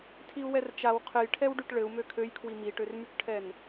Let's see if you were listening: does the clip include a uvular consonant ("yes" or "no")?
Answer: yes